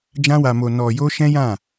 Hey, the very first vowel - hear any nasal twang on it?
yes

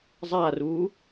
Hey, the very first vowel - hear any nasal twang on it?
no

